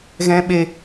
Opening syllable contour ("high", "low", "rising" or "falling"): high